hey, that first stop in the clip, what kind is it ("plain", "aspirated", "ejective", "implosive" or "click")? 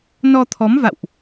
aspirated